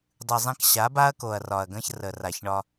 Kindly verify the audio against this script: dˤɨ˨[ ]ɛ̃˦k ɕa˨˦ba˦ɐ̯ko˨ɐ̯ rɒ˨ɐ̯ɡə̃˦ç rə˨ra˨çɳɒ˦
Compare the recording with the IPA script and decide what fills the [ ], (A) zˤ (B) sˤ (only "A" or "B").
A